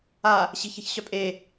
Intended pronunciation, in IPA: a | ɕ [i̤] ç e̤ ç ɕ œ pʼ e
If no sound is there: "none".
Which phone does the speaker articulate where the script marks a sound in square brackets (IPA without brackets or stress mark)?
i̤